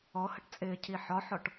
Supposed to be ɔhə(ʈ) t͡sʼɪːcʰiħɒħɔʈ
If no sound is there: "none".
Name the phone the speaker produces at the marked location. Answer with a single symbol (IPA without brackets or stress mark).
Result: ʈ